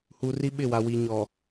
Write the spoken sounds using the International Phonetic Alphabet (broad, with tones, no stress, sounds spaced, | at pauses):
h u˨ r i˦ ɓ ɪ˦˨ w a˨ w i˨ ɲ ɔ˨